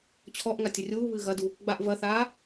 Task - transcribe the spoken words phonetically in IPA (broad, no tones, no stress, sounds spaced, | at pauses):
t͡ɕʰ ɔ ʔ ŋ a tʲ ɘ rʲ uː β ɨː ɣ ɐ d u | ɡ͡b a ʔ v ɐ θ aː